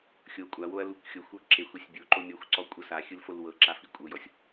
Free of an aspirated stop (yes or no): yes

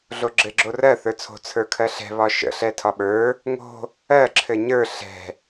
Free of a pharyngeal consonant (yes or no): yes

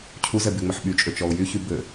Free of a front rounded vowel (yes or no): no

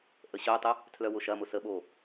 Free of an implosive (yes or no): no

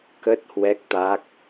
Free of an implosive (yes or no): yes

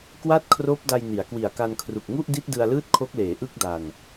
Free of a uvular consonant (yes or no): yes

